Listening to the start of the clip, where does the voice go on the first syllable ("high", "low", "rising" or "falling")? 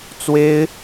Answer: high